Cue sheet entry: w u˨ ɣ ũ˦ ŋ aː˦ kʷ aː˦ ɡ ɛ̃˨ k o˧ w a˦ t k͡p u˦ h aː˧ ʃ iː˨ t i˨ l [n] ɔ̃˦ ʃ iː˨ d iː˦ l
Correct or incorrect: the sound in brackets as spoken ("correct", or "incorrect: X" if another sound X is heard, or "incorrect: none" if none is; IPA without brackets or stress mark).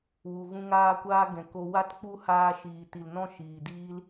correct